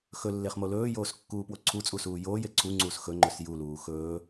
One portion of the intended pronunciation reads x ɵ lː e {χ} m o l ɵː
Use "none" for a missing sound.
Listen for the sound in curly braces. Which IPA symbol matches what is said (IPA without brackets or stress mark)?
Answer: χ